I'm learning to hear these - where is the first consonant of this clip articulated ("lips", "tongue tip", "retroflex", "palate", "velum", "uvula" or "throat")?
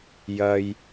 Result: palate